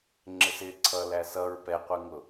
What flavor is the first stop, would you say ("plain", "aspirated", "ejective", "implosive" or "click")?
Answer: click